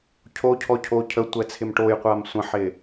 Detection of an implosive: absent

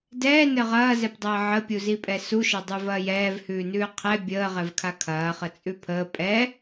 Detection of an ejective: present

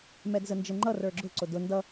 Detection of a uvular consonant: absent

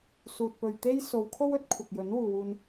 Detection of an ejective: absent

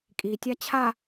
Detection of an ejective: present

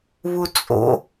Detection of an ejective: present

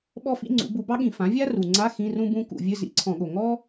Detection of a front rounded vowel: absent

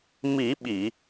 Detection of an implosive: present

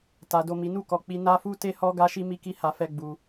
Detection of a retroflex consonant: absent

